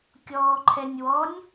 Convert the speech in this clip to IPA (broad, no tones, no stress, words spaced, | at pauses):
kʲɔːǃʰɛnʲwɔnʲ